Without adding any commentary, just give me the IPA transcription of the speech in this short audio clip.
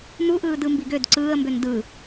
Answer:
n u ʔ ɯː d ɯ m b i ɡ ø d ǀ ɯː ə̯ m b ø n d ɯ

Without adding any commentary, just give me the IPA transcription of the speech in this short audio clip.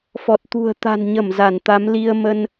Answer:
f ɔ˨˩ t̚ t̪ ṳ˨˩ ə̯ t̪ a̤˨˩ n ɲ ə˧˩ m z a˧˩ n t̪ a˨˦ m l i˧ ə̯ m ə˧ n

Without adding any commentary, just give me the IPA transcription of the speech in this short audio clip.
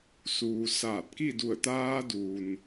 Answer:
s uː˩ s aː˧˩ t̚ k i˥˨ d u˧˩ ə̯ t̪ aː˧ d uː˩ n

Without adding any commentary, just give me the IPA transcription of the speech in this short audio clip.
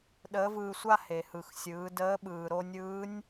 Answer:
ɗ əː˧˥ v ɯː˧ sʷ a˥ h e˩ h ɯ˩ x sʲ ɯː˩˧ d əː˧˥ ɓ ɯː˩ ɾ o˧ nʲ ɯː˧˥ nʲ

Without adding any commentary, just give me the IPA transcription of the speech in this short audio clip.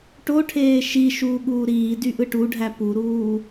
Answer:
ʈ o ʈʰ eː ʃ i ʃ uː ɠ uː ɾ iː d y ʔ ɯ ʈ u ɖʱ æ p u ɾ uː

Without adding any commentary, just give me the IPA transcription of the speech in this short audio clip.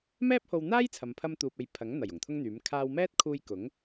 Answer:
m ɛː˥ p̚ h o˧ w n̪ aː˥ j t͡sʰ ɐ˨ m pʰ ɐ˧ m t̪ uː˨ p̚ e˨ j pʰ ɐ˨˥ ŋ n̪ ɐ˨˩ j ʊ˨˩ ŋ t̪ʰ ʊ˥ ŋ n̪ yː˨˥ m kʰ aː˧ w m ɛː˥ t̚ kʰ uː˧ j k ʊ˨˥ ŋ

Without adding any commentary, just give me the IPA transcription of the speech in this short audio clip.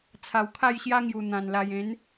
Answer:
t͡sʰ a˨˩ w kʰ a˥˧ j ɕ j a˦ ŋ j u˨˩ n̪ ã˨˩ n l a˨˩ j ẽ˨˦ n

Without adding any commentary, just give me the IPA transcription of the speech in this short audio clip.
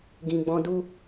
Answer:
ɡ ĩ˨ ɡ͡b ɔ̃˧ d u˦

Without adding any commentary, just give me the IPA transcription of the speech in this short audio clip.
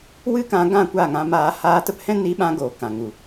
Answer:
w ɨ˦ k ã˧ ɡ ã˦˨ kʷ a˦˨ ŋ ã˧ m aː˧ h aː˧ t ə˦ p h ɛ̃˦ n i˧ ɓ ã˧ ɡ oː˨ k ã˨ ŋ u˨

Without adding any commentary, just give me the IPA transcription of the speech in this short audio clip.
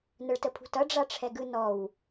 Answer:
n ə ɭ t ə pʰ ṳ t ʌ ɖ͡ʐ a ʈ͡ʂʰ ɛ ɡ ɯ n ɔ w

